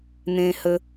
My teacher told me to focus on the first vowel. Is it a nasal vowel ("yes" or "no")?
yes